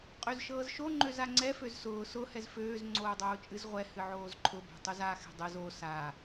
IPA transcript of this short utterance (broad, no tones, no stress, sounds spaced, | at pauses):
qʼ ø z ʃ ɤː z ʃ o ŋ͡ǃ ø z a ŋ͡ǀ ɛ f ø z s ʊː s ʊ h ɛ z f øː z ŋ͡ǀ oː dˤ oː t͡ʃʼ ɨ z ʁʷ ɛ h ɨ ʕ oː z ǃʰ ʊ b ɛ̤ tˤ u z a x ɛ̤ dˤ ɨ z o s a